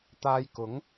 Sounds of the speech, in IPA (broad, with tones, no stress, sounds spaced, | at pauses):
t̪ aː˧ j k ʊ˨˥ ŋ